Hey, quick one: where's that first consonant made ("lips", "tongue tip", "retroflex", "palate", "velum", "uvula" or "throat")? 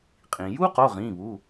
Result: uvula